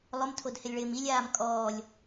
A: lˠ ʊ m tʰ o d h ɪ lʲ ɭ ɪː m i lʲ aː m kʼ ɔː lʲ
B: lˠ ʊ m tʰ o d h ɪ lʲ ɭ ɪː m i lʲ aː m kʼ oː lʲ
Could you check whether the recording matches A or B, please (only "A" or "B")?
A